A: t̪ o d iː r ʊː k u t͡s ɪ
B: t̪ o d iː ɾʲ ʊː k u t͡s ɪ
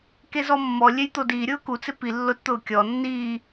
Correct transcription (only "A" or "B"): B